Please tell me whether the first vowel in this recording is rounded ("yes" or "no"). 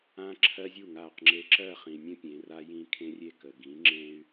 no